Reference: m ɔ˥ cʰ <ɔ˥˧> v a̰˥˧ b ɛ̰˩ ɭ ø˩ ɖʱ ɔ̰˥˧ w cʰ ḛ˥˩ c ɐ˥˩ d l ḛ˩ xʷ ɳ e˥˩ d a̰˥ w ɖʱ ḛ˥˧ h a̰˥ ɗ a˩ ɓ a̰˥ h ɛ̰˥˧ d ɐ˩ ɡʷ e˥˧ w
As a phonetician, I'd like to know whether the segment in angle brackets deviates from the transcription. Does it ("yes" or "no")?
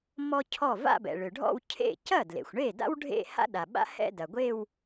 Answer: yes